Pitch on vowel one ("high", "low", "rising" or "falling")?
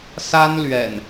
high